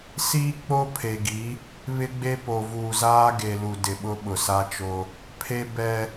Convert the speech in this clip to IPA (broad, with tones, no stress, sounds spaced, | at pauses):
s iː˦ k͡p o˦ pʰ e˨ ɡ i˨˦ | β ɪ˦ ɡ͡b e˦ p o˨ v uː˨ z aː˦ ɡ e˨ l u˨ d ɪ˨ ɓ ʊ˦ ɓ ʊ˨ s a˦ t͡ʃ o˦ | pʰ e˦ b ɛ˦